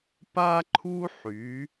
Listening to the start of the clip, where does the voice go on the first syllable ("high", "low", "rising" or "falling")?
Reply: high